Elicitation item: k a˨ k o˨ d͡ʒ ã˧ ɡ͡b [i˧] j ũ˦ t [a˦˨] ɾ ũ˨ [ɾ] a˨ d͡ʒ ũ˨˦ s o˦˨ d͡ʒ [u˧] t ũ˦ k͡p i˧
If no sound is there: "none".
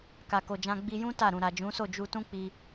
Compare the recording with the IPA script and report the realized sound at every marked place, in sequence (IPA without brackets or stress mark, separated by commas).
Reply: i˧, a˦˨, ɾ, u˧